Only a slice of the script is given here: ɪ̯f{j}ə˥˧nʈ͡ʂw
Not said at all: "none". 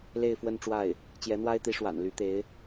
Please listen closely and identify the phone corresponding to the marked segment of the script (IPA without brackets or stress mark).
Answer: w